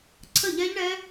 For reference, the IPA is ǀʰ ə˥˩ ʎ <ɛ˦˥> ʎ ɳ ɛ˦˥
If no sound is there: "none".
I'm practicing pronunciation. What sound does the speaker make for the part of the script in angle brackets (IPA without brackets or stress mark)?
ɛ˦˥